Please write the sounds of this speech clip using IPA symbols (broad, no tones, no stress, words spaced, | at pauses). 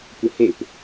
kʷəhep